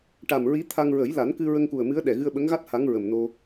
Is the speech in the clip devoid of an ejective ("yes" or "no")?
yes